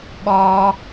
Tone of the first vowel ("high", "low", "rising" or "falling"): high